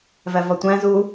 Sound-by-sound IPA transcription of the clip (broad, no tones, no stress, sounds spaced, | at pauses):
v æ v ɒ tʷ æ̃ z u